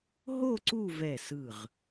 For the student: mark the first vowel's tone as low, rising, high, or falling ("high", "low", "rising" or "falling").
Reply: falling